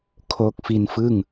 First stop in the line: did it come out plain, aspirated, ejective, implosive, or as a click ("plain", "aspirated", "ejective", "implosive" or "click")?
aspirated